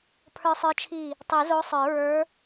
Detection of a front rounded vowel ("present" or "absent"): absent